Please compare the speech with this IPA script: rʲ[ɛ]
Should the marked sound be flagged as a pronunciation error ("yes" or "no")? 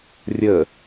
yes